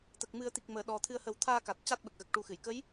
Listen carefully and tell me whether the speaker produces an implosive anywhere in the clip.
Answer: yes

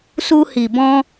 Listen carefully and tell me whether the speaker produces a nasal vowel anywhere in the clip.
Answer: yes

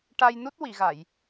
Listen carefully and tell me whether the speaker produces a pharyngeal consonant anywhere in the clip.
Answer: no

